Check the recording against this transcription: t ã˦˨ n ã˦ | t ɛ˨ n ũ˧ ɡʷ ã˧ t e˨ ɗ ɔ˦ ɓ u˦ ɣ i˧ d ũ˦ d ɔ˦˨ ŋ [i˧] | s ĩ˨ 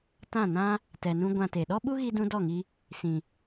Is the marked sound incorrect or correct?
correct